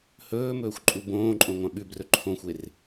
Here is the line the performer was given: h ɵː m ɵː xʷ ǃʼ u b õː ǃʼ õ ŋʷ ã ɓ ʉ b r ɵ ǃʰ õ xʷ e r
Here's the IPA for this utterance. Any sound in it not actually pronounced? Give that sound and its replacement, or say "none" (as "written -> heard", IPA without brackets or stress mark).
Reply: none